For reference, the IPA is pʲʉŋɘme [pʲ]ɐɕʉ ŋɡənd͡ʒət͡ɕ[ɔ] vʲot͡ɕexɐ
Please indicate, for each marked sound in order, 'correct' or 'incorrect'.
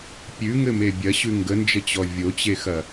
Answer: incorrect: bʲ, correct

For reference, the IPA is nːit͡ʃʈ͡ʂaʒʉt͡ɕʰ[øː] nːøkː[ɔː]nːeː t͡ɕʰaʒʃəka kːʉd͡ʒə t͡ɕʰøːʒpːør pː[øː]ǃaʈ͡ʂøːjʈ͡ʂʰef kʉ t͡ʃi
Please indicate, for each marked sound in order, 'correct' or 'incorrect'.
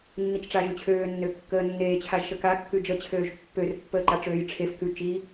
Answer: correct, incorrect: əː, incorrect: əː

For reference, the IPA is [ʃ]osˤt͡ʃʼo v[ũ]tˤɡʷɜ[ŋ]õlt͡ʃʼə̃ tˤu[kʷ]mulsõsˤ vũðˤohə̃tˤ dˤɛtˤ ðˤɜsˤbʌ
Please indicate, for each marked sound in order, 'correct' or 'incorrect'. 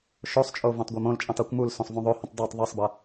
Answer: correct, incorrect: õ, incorrect: m, correct

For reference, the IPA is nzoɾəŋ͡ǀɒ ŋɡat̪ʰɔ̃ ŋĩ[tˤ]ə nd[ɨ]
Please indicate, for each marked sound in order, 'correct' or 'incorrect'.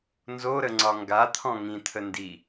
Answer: incorrect: t̪ʰ, incorrect: i

